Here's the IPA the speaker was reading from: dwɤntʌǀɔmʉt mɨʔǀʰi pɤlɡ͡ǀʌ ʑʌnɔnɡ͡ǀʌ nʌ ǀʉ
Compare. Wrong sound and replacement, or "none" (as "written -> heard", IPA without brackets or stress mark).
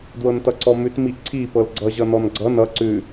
ɨ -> i